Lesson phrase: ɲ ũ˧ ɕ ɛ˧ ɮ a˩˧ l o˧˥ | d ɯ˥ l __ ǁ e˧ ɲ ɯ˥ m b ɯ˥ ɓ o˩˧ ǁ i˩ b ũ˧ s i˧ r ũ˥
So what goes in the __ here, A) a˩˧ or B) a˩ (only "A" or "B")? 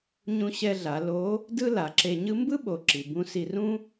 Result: A